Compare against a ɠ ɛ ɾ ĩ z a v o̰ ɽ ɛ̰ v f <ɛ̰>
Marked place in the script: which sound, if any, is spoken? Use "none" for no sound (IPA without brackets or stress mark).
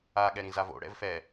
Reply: ɛ